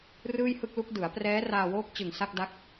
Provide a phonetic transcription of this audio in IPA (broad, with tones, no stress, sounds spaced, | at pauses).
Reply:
r ɯː˥˩ j h ɯ˥˩ k̚ l u˦˥ k̚ d ɯ˩˦ a̯ p r ɛː˦˥ r aː˧ w oː˦˥ k̚ t͡ɕ ɯ˨˩ ŋ s a˥˩ k̚ d a˦˥ k̚